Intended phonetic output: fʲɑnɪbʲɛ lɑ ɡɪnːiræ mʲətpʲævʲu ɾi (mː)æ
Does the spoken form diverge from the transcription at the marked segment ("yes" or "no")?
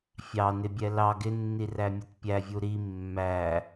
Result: no